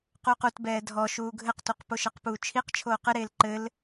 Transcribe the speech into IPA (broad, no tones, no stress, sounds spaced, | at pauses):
q u q u t b ɛː dʱ ɔ ʃ uː ɡʱ ɘ q t u q p o ʃ ɜ q p uː t͡ʃʰ i q t͡ʃʰ oː q ɘ ɾ eː l ǃ ɘ l